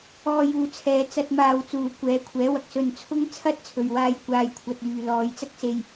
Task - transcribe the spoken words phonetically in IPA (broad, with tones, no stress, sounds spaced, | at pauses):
ɔː˧ j uː˨˧ t͡sʰ ɛː˨˧ t͡s ɐ˧ t̚ m aː˧ w t͡s uː˨˧ kʷ ɛː˨˥ kʷʰ ɛː˨˥ w ɐ˨ k̚ s ɵ˧ n t͡sʰ ʊ˥ ŋ t͡sʰ ɐ˥ t̚ t͡sʰ ɵ˨ ɥ w aː˧ j kʷ aː˨ j kʷʰ ɐ˨ t̚ yː˨ l ɔː˨ j t͡s ɐ˥ k̚ s e˧ j